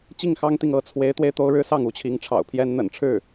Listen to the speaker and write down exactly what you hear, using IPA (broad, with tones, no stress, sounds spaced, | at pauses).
t͡ɕ i˥˩ ŋ x ɑ˥ ŋ t̪ i˨ ŋ ɤ˥˩ t͡sʰ w e˧˥ ɪ̯ t̪ w e˧ ɪ̯ t̪ o˥ ʊ̯ ɻ ɻ̩˥ s ɑ˥˩ ŋ u˧˥ t͡ɕʰ i˧˥ ŋ ʈ͡ʂʰ ɑ̰˨˩ ʊ̯ pʰ j ɛ˥ n n̪ ə̰˨˩ n ʈ͡ʂʰ ɻ̩˥˩